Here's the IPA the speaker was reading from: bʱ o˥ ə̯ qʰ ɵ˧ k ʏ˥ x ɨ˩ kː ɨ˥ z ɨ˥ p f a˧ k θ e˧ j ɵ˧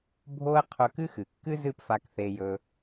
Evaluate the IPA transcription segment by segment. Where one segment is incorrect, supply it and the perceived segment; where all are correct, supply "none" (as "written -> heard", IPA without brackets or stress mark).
ʏ˥ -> ɨ˥